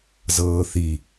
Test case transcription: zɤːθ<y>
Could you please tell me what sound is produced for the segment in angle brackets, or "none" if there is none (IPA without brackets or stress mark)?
i